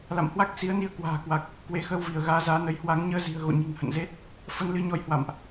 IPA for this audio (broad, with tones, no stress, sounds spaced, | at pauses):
l a̰˧˨ m h w a˦˥ k̚ s i˨˦ ə̯ n i˧ ə̯ k w a̤ː˨˩ k w a˨˩ k̚ | k w e˨˦ x əː˧ w v i˧˩ ə̯ ɣ aː˨˦ z aː˨˦ n ə˨˦ j h w a˨˦ ŋ ɲ əː˧ z i̤˨˩ ə̯ ɣ o̰˧˨ ɲ i̤˨˩ ŋ h ə̰˧˨ n z e˦˥ t̚ | f ə˧ n l ɨ˧ ɲ ɔ˧ j h w a̰˧˨ m ʔ